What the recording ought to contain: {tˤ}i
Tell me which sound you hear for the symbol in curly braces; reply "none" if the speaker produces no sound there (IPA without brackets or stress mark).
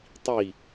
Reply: tˤ